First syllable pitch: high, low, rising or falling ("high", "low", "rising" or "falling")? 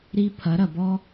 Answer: high